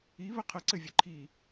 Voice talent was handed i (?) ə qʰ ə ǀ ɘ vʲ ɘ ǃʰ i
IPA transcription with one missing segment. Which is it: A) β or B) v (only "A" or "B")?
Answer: A